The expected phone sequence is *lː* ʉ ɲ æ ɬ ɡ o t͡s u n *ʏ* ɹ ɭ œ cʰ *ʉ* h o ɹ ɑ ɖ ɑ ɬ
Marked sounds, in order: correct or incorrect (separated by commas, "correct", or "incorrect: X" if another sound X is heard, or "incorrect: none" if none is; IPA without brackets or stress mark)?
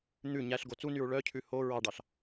incorrect: n̪, incorrect: y, correct